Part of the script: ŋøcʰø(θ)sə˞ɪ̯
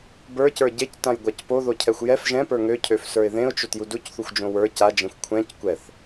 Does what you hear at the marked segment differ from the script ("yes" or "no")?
yes